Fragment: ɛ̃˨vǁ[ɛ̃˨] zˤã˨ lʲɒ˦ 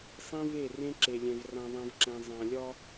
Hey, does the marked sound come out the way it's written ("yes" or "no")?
yes